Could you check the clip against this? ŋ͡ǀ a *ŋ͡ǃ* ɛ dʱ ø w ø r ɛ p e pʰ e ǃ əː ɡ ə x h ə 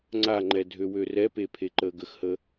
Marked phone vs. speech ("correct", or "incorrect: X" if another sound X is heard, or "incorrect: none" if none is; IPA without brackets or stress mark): correct